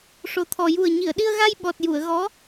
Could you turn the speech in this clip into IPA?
ʂ o˨˩ t̪ʰ ɔ˨˩ j u˨˩ ə̯ ɲ i˨˩˨ ə̯ ɗ i˧ ə̯ ɣ a˧ j ɓ ɔ˨˩ t̚ j u˨˩˨ ə̯ ɣ ɔ˧˥

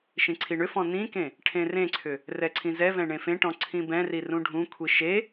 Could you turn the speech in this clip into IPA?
ʃ ĩ ǀʰ i ɳ ʏ f ɔ̃ n ĩ k ẽ | ʈʰ ẽ r ẽ ǀʰ ʏ | r ɛ ǀʰ ĩ z ɛ v ɛ̃ ɳ ẽ f ẽ ʈ ɔ̃ ǀʰ ĩ b ɛ̃ r i r ũ ɖʱ ũ kʷʰ i ʃ e

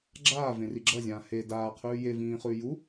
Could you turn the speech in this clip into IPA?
ɡ͡ǁ aː v ẽ r i ɡ͡ǁ ɐ zʲ ãː h e d aː qʰ ʉː j e v ĩː χ ʉː j u

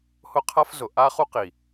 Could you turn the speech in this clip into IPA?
h ʊ˦ qʰ a˦ f z ʊ˨ ʔ a˦ χ u˦ q i˨

